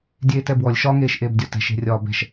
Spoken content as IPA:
dʲeːtɛbwɔlʲ ʃɒŋeːʃ ʔeːbdʲɒtɛ̤ʃe̤ rʲɒːbɛ̤ʃ

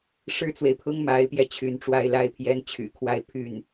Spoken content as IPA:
ʂɻ̩˥t͡swe˨ɪ̯pʰʊ˥ŋ ma˧˥ɪ̯pjɛ˧ t͡ɕʰy˧˥nʈ͡ʂwa˥ɪ̯ la˥ɪ̯pʰjɛ˥n t͡ɕʰy̰˨˩kʰwa˥˧ɪ̯ pʰy˥˩n

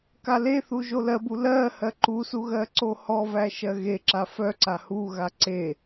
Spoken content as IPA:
kaleθu ʒolɜbu lɜ hɜǃusu ɣɜǀohɔvæ ʃɜɣeǁa fœǀa huɣa ǀe

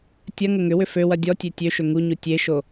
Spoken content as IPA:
tʲɐŋə ŋʏwʏ føwɐ dʲɔtʲø tʲøʃø ŋuɲu tʲeʃo

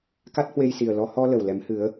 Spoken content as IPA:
ka˦˥t̚hwe˧jsi˨˩ə̯ lɔ˧ hɔ˧ lə˨˩wlɛ˨˦mhɨ˨˦ə̯

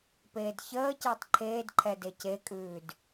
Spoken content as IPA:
peːdçəː cəːtˤǃʰeːdǃʰɛ decekʼʉːd

